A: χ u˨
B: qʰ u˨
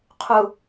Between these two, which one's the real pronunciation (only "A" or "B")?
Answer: B